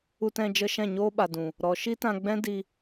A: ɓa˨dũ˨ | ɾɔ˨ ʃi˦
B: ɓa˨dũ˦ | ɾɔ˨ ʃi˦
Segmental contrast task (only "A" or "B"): A